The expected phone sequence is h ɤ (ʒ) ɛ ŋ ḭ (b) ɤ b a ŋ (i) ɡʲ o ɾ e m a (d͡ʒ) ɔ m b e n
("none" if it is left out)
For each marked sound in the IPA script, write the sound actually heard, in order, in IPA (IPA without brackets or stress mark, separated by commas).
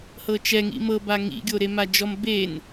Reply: t͡ʃ, m, ḭ, d͡ʒ